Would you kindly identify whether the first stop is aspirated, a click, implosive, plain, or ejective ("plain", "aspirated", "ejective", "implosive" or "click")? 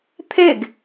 aspirated